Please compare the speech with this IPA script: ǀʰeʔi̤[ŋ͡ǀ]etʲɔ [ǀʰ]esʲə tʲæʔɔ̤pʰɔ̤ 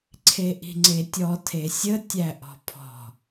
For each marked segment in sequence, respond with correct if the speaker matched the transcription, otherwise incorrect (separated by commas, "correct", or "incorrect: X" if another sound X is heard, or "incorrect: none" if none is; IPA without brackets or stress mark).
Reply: correct, incorrect: tʰ